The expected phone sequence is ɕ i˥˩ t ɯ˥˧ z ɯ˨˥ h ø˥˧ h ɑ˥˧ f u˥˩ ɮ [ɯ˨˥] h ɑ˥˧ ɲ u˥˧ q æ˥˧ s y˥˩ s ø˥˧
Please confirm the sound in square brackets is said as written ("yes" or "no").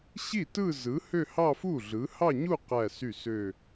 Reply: yes